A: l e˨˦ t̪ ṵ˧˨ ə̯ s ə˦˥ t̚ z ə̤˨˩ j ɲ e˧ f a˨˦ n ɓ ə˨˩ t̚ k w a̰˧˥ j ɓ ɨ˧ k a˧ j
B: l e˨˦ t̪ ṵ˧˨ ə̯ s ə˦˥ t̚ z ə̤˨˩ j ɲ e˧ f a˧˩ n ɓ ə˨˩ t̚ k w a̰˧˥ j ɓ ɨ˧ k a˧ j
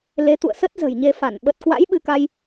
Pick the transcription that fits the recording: B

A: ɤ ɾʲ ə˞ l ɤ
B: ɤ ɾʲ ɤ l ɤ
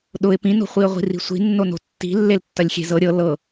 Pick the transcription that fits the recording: B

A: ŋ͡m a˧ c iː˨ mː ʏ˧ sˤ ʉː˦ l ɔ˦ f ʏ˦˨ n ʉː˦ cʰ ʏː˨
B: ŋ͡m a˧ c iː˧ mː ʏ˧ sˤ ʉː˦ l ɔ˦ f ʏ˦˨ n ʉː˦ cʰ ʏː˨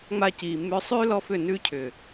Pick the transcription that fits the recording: A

